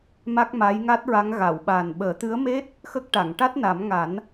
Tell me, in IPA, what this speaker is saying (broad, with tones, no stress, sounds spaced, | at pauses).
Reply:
m a˦˥ k̚ m a˧˥ j ŋ a˦˥ t̚ ɹ a˧˥ ŋ ɣ a˨˩˨ w ɓ a˨˩ n ɓ əː˨˩˦ t̪ ɨ˧˥ ə̯ m e˦˥ t̚ | x ə˦˥ k̚ ʈ a˨˩˨ ŋ ʈ a˦˥ t̚ n a˨˩˦ m ŋ a˨˩˦ n